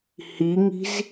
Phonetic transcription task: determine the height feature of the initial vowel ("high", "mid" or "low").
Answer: high